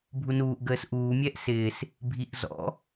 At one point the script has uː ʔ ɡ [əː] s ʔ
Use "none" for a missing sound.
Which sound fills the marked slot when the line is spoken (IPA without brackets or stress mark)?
əː